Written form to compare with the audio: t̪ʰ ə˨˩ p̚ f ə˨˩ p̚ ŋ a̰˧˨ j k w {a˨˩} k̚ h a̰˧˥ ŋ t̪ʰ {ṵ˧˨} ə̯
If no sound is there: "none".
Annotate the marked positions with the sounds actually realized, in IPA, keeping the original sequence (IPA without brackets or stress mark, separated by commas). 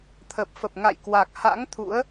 a˨˩, ṵ˧˥